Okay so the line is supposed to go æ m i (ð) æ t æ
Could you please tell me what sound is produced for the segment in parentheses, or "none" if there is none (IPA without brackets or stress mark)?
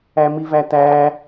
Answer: v